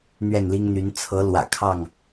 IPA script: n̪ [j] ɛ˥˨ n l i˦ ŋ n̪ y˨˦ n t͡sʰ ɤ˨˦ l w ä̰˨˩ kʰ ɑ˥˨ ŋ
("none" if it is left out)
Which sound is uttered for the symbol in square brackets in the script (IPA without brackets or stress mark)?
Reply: ɥ